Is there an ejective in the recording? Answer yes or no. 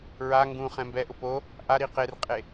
yes